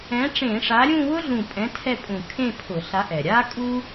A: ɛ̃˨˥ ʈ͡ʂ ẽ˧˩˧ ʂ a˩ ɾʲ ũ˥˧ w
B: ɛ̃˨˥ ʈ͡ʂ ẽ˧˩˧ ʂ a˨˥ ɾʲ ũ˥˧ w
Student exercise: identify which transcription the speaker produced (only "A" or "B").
B